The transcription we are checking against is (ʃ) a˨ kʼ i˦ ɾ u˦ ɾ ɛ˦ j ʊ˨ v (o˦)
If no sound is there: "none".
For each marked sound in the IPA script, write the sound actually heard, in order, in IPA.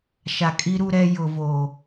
ʃ, o˨

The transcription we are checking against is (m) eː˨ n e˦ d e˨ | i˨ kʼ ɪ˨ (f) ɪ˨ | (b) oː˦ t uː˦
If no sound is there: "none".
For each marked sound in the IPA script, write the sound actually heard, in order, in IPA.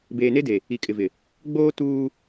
b, v, ɡ͡b

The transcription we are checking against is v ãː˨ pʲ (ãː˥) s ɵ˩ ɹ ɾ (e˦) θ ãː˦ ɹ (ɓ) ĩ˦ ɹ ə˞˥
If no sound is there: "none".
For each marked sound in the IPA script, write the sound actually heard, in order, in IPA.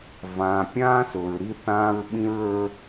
ãː˥, i˦, ɓ

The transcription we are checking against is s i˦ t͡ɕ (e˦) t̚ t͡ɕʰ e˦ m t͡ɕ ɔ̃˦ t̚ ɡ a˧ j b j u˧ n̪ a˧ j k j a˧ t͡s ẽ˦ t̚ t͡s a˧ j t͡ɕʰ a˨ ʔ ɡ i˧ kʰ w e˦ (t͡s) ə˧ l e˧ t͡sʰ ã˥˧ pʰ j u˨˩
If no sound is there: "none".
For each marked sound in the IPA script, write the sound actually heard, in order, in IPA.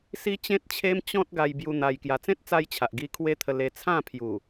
ẽ˦, t̪ʰ

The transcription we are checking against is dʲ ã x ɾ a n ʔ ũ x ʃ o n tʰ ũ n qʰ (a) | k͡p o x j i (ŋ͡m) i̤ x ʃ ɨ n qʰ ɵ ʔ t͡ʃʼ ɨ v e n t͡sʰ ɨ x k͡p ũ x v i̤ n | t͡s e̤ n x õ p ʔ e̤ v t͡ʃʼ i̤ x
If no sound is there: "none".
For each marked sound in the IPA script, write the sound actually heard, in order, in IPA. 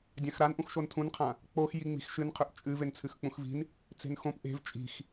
ã, ŋ͡m

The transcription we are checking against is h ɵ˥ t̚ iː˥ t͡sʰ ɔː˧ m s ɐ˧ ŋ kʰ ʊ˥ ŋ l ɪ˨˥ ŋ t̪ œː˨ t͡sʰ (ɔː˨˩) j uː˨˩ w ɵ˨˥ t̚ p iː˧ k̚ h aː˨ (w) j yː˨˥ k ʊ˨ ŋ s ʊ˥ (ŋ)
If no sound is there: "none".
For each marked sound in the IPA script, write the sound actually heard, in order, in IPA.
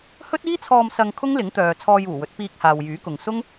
ɔː˧, w, ŋ

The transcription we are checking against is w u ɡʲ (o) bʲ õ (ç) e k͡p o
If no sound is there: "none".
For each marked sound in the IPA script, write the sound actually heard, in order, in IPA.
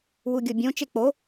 o, t͡ʃ

